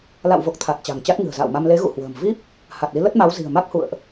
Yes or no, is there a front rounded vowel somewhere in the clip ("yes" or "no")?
no